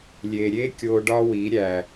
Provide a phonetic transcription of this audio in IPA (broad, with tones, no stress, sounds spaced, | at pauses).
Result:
lʲ e˨ ɾʲ e˦ kʲ o˧ ɖ ɒ˦ w i˨˦ ɾʲ æ˨